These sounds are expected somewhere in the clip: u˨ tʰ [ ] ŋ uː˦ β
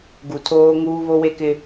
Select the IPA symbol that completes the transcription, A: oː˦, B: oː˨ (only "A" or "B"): A